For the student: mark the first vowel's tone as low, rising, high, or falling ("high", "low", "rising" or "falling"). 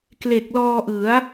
low